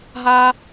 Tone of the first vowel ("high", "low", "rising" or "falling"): high